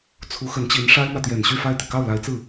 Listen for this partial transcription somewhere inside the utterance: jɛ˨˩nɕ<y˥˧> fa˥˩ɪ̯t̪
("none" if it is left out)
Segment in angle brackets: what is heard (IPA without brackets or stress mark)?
y˥˧